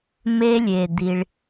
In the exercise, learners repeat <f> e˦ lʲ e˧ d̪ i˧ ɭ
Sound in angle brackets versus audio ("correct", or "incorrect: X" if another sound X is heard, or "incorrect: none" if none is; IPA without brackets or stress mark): incorrect: m